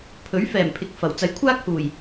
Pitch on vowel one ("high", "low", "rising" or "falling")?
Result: rising